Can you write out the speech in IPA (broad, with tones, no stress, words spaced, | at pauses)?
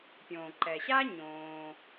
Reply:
pʲõː˩ǃɛ˩ɕa˥ ɲõː˩